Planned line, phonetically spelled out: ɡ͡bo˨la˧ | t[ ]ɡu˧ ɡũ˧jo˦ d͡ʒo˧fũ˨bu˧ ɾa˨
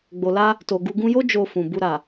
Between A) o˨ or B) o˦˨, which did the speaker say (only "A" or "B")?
A